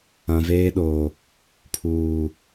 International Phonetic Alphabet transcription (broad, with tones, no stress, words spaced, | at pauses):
ã˨veː˦ɗoː˨ | pʰuː˨